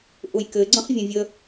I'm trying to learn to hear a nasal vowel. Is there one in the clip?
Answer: yes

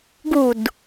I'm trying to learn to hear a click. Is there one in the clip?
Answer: no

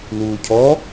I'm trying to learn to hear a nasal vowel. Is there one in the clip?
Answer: no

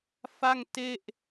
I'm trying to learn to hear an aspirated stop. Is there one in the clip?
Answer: no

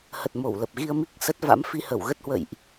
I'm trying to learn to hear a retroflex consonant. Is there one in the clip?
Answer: no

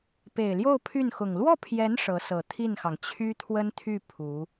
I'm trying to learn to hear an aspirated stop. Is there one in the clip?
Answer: yes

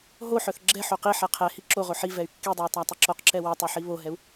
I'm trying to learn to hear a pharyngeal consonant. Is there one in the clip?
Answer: yes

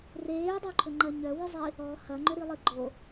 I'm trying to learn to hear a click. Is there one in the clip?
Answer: yes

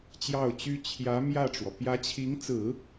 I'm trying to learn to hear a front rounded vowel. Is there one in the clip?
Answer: yes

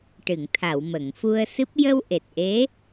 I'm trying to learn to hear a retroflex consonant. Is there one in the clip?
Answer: yes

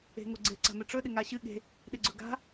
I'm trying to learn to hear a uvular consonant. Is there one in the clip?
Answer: no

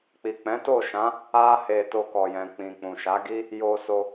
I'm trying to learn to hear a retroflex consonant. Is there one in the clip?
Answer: no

